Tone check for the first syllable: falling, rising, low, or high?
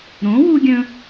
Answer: rising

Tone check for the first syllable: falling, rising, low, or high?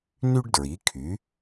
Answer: high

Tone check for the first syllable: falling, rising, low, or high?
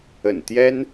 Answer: low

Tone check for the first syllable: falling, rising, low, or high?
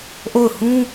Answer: falling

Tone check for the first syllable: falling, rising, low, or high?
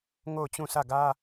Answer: falling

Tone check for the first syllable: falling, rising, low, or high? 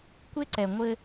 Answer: high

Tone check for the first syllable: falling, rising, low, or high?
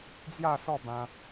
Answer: falling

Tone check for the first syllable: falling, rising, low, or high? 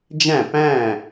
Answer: falling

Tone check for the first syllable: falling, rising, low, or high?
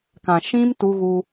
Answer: low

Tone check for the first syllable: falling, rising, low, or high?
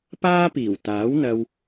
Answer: high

